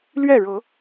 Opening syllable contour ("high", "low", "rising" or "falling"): falling